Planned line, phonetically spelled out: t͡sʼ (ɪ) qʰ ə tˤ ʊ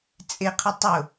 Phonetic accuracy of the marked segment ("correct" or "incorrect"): correct